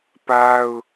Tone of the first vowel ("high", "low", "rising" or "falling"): high